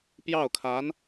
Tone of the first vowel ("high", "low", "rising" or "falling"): falling